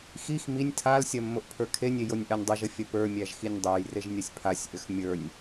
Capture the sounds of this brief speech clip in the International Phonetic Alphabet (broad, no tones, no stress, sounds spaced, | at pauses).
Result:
x i x m i nʲ tʰ a l sʲ ɐ mː o ʔ pʰ ə˞ kʰ e nʲ e j o nʲ ʔ a nʲ dˤ i ʒ ə fʲ ɐ p ə˞ mʲ æ ʒ x i nʲ dˤ o j r e ʒ nʲ ɐ sʲ pʰ a sʲ ʔ ʏ x mʲ ə˞ nʲ